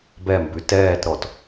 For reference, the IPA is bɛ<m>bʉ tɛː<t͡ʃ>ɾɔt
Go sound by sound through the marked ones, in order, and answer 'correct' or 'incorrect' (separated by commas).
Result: correct, incorrect